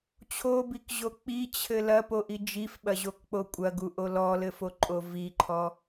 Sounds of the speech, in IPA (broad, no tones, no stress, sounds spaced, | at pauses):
t͡ɕʰ o b i k ʑ o k͡p i t͡ɕʰ ɘ l ɐ p o ʔ i d͡ʒ i f ɓ ɐ ʑ o k k͡p o kʷʼ ɐ ɡ u ʔ o l ɔ l ɘ f o ǃʼ o v i ǃʰ ɔ